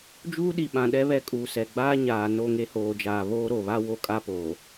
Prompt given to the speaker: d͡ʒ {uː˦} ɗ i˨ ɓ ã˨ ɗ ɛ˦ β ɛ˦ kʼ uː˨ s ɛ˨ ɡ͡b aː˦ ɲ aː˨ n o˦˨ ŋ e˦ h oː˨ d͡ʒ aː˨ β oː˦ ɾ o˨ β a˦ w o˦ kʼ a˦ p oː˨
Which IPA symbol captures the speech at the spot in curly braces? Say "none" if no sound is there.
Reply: uː˦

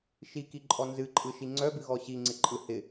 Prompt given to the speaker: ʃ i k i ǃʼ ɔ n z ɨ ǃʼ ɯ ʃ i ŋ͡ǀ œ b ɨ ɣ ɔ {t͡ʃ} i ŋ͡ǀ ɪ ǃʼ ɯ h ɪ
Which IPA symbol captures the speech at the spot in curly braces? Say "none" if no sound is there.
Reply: ɕ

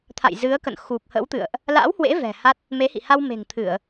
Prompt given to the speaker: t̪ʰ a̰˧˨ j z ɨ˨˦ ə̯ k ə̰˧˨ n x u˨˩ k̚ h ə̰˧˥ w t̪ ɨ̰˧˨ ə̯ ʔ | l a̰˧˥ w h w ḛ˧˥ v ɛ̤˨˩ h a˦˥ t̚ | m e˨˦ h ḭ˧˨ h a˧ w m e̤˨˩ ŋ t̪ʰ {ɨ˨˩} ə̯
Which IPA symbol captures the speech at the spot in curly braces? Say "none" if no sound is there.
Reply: ɨ˧˩˨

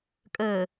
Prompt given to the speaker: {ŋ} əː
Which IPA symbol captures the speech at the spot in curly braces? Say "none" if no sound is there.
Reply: kʼ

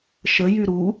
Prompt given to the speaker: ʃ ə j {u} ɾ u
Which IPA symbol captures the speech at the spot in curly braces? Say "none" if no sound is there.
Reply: y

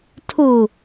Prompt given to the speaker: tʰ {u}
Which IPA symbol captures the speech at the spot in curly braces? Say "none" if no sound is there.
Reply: u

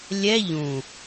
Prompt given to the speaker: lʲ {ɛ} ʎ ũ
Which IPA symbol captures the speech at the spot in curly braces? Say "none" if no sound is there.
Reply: ɛ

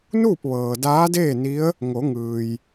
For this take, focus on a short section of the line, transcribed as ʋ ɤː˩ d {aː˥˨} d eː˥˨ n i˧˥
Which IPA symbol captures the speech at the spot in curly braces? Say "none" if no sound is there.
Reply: aː˧˥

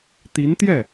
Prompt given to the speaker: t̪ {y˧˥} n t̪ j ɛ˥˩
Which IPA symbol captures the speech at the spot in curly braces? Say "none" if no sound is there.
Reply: i˧˥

